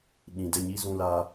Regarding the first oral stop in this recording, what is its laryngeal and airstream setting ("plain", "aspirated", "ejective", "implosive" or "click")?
implosive